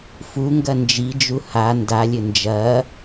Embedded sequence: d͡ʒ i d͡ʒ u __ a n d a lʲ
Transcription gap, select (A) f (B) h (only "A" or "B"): B